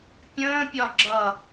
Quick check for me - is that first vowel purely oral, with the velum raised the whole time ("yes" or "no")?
no